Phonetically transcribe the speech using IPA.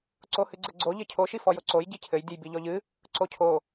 ǀ o h ɨ ɡ͡ǀ ɘ ɡ͡ǀ o ʎ ɘ cʰ o ʃ i f ɔ j o ǀ o j ɟ i cʰ ɘ j dʲ ɨ j b i ʎ ɔ ʎ ɨ | ǀ o cʰ o

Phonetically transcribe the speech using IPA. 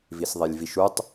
v i s ðˤ e lʲ v i ʃ u tˤ

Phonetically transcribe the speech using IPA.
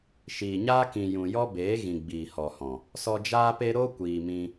ʃ iː˨ ɲ aː˦ k ĩ˨ j ũ˨ j ɔ˦ b eː˨˦ ɣ ĩ˨ ɡ͡b iː˨ h ɔ˨ h ɔ̃˨ | s ɔ˧ d͡ʒ aː˦ p e˦ ɾ o˦ kʷ iː˨ m ĩ˧

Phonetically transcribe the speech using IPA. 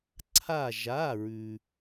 ǀʰ a˧˩ ʒ a˩˧˩ ɹ ʉ˩

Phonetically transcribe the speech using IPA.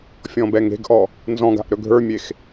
fʲ ɔ̃ b ɛ ŋ e̤ ɡ ʔ ɔ | n z ɔ̃ ɡ a̤ ʔ ɾ ɵ ɡʱ ə˞ mʲ e x

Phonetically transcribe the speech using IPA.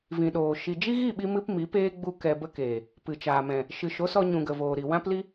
v ĩ˨ ɗ oː˨ ʃ i˨ d͡ʒ i˦ ɣ i˦˨ ɓ i˧ m ɨ˦ p m i˨˦ p eː˦ ɡ͡b u˦ k ɛ˧ b ə˦ k eː˨ | p ɨ˨ t͡ʃ aː˨ m ɛ̃˨ | ʃ ɨ˨ ʃ o˨˦ s ɔ˧ ɲ ũ˨ ɡ ə˨ v oː˨ ɾ i˨ w ã˦ p l i˦

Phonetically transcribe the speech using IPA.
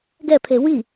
ɡ ɛ pʰ e w i

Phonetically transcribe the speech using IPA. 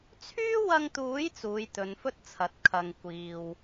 t͡sʰ yː˥ w ɐ˧ ŋ t̪ uː˨˥ j t͡s uː˨˧ j t̪ ɵ˨˧ n f ɵ˥ t̚ t͡sʰ ɐ˨˥ t̚ kʰ ɐ˨ ŋ kʷ iː˨ w

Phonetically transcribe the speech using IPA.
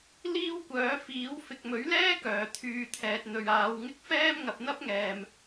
l iː˥ w kʷ œː˨˥ f iː˨˥ w f ɪ˨ k̚ m ɵ˨˥ ɥ l ɛː˥ k œː˨ t̪ʰ yː˧ t̪ʰ ɛː˨ t̚ n̪ ɵ˨ ɥ aː˨˧ w ŋ ɪ˥ k̚ f ɛː˥ m ŋ ɐ˨ p̚ n̪ ɐ˥ p̚ ŋ ɛː˨ m

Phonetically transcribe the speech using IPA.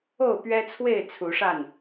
o˥˨ ʊ̯ p ɥ ɛ˦ t͡sʰ w e˥˨ ɪ̯ t͡sʰ u˨˦ ʂ a˥˨ n

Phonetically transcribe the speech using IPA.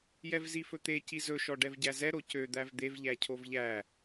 j ɛ v z i f ɵ t̪ e c i z ɵ ʃ ɔ ɖ ɛ v ɟ æ z ɛ ɾ o c ø d̪ æ v d̪ e v ʎ æ cʰ o v ʎ æ

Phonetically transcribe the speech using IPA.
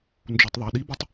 n d͡ʒ u tˤ ðˤ æ ɗ i b i tˤ

